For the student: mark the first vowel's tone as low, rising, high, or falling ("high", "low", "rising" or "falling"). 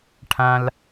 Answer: high